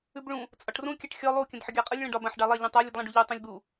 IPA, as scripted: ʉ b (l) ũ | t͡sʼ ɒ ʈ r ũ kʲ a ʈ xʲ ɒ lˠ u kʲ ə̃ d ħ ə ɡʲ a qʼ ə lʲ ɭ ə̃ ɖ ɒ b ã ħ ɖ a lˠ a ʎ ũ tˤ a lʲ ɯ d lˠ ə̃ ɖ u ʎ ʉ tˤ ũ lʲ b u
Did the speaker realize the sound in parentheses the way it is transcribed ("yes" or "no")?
no